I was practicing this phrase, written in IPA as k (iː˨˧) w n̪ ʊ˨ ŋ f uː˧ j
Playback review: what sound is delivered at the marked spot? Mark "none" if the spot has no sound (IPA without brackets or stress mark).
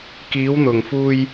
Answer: iː˨˧